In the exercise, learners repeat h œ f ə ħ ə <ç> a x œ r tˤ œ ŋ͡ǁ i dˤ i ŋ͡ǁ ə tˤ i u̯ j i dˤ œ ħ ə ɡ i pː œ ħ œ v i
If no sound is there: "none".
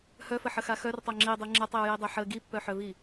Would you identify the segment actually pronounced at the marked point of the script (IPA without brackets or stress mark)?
x